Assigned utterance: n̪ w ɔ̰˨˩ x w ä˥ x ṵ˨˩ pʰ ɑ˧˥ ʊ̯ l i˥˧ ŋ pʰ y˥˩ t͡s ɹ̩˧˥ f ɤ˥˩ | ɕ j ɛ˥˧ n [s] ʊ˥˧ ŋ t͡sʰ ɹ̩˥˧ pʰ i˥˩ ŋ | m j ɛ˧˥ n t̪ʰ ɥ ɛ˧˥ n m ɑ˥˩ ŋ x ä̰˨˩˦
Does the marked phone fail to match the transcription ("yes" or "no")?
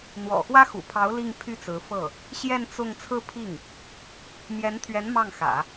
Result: yes